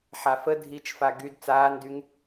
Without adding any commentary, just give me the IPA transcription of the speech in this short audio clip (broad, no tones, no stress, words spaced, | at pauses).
ħafə dʱit͡ʃfa ɡyd t͡saːndyŋ